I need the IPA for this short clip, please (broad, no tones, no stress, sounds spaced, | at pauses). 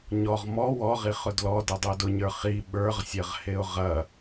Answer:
ɲ ɔ ʁ m ɔ w ɔ ʁ i χ ʊ d l ɔ d ɐ dˤ o d ʊ ɲ ə˞ χ i ɓ ə˞ ʁ sʲ ɐ ʁ h e ʊ̯ ʁ ɐ